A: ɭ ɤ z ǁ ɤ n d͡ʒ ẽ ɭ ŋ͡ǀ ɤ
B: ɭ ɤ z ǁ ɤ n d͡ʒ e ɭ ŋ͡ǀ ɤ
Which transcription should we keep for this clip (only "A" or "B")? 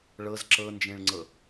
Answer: A